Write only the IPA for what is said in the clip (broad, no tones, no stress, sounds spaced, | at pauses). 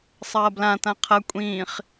sˤ ɐː b l ã t ã qʰ ɐ kʷʼ ĩː χ